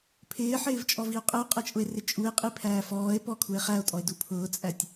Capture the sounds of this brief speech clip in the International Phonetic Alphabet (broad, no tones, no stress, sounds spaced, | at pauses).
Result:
pʰ ɪː ħ ɪː v t͡ʃʼ ɔ v i o̯ qʼ ɛ o̯ qʼ ɛ t͡ʃʼ ʊ e̯ r ɪ t͡ʃʼ u e̯ qʼ i pʰ æː f ɔː e̯ p ɔ kʰ u e̯ χ æ o̯ tʼ ɔ e̯ d u pʰ ʊː t͡sʼ æ tʲ